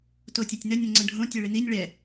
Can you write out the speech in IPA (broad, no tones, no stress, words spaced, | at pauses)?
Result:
totʲɛtʲnə nʲə̃ŋ͡ǀə̃ɖʱõ tʲɛɭɪninʲ ɭɛ